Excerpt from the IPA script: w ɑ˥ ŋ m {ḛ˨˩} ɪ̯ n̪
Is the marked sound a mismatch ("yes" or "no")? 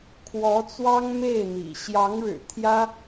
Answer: yes